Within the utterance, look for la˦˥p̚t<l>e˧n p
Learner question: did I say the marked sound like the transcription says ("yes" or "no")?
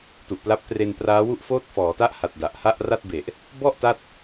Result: no